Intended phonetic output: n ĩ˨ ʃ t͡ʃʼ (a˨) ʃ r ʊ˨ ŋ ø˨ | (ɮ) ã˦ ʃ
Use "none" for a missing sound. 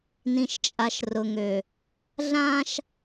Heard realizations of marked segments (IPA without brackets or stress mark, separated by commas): a˨, ɮ